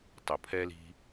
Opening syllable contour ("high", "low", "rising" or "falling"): low